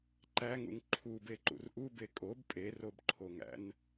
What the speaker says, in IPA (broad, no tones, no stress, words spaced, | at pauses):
ǃæŋṵŋ ǃʰu beǃṵrʔu bekʼob pʼerobǃʰoŋæ̰n